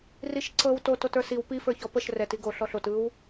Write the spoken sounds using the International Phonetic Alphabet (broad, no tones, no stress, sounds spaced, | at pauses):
r i ʃ ǀ ɤ w t o t o t ə˞ s i w p i f ə˞ ç ɔ p ə ʃ r ɛ t i ɡ o ɬ ɔ ɬ o t ɯ w